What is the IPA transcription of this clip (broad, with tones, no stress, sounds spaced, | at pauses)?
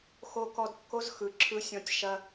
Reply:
x o˧ k ɔ˧ d kː o˦ z x ɯ˨ ǁʰ ɯ˧ sʲ ɔ̃˧ tʲ ʃ ɐ˧